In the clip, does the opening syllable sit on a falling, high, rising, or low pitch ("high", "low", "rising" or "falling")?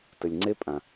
low